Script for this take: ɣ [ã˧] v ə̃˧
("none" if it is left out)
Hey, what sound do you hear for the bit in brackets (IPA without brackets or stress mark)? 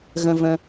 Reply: ə̃˧